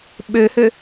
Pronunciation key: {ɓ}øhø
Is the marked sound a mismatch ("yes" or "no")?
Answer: no